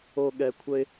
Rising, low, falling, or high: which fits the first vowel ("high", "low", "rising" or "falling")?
low